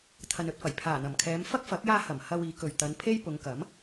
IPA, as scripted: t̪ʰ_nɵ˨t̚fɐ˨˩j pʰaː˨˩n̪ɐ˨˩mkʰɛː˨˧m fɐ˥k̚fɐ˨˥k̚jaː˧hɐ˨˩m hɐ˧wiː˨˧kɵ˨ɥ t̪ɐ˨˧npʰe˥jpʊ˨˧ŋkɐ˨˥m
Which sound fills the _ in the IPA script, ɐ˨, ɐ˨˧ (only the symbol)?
ɐ˨